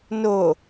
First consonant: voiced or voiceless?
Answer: voiced